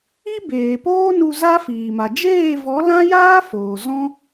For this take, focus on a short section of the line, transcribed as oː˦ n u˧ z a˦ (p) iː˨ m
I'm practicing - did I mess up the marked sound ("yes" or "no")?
yes